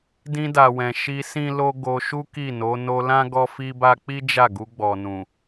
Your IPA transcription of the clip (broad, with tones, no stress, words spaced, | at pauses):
dĩ˧da˨wɛ̃˨ ʃi˧ sĩ˦lo˦ ɡo˧ʃu˦ ki˦˨no˨˦ no˧lã˦ ɡɔ˦fi˦ba˦ k͡pi˦d͡ʒa˦˨ ɡu˧ɡ͡bɔ˨ nũ˨